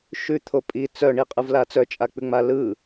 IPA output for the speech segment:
ʃ ʉ t̪ʰ o pʼ i t͡s œ ɳ i qʼ ɯ v l a t͡s œ t͡ʃʼ a k͡p ʉ ŋ͡m a l ɯ

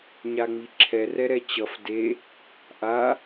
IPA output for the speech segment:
ɲ a ŋ͡m i ǁʰ ɛ r ɛ ɾ ɛ t͡ɕ ʌ f d e | ʔ a

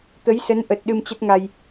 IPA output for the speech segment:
t̪ ə˨˦ j s ə˨˦ n ʔ ə˨˩ t̚ ɗ ɨ˧ m t͡ɕ ə˦˥ t̚ ŋ a˧ j

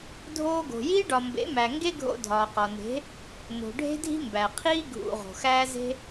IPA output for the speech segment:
dʱ oː˧ ɡ o̤˨ j iː˦ ɖ ɒ˨ m b ḛ˨˦ m æ˨ ŋ ɡ e˦ ɡʱ o̰˧ dʱ ɒː˨ q ɒ˨ n e̤˨˦ | n o̤˨ ɖʱ e̤˦ dʱ i̤˦ m b æ˨ qʰ iː˦ ɡʱ ṵ˨ ʁ o̤˨ x æː˦ z e̤˦

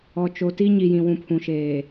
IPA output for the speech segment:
ɔ˨ t͡ʃ o˨ t i˦ ɲ i˨ j ĩ˨ w ũ˨ pʰ ũ˨ ʃ eː˨

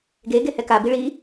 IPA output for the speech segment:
ɡ e ɡ e h ɛ k a b i ɭ i

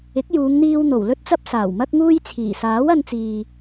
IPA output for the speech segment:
ɪ˨˥ k̚ j uː˨˧ ŋ n̪ iː˧ w n̪ o˨˩ w l ɵ˥ t̚ t͡s ɐ˥ p̚ s aː˨˩ w m ɐ˥ k̚ ŋ uː˥ j t͡sʰ iː˨˩ s aː˨˥ w ɐ˧ n t͡s iː˨

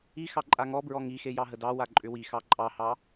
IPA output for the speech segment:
i x ɑ ǃʼ a ŋ ɔ b ɹ ɔ ŋ i x e j ɑ ɦ ə d ɑ w a ǃʼ ʏ w i x ɑ ǃʼ ɑ h ɑ

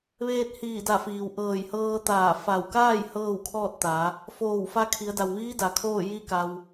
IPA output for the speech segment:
ʋ eː˧ t̚ h iː˧˩ d a˧˩ f iː˩ w ʔ ɤː˧˩ j h ɤː˧ t̪ aː˧˩ f a˧˩ w k aː˥˨ j h ɤː˥˨ w kʰ ɔː˥˨ t̚ t̪ a˩˧ | f oː˧˩ w f a˧ kʰ i˩˧ ə̯ d a˩ w ʋ iː˧˥ d a˩ kʰ oː˥˨ j i˥˨ k a˧ w

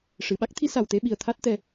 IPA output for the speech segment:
ʂ ɨ˨˩˨ ɓ a˦˥ k̚ t̪ʰ i˧˥ s a˨˩ w t̪ e˧ ɓ i˨˩ ə̯ t̪ʰ a˦˥ t̚ t̪ ɛ˧

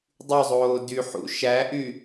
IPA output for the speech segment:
dˤ y zˤ oː d y ħ ṵ ʃ æ ʔ y

